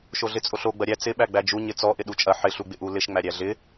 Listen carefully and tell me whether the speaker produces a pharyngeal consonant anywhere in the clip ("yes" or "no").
yes